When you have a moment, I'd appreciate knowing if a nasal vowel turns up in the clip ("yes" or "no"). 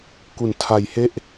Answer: no